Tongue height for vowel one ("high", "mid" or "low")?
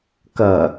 low